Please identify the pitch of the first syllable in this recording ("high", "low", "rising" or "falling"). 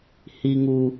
low